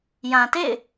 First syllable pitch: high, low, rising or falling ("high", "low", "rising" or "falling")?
low